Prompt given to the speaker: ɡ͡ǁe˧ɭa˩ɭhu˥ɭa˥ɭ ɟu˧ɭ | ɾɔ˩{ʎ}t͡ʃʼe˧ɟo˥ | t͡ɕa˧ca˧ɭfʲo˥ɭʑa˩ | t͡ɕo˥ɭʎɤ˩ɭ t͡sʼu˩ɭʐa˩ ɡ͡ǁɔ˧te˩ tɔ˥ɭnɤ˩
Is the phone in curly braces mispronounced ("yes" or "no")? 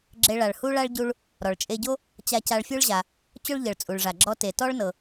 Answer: yes